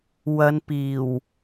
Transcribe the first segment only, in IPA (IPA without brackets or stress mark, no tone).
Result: w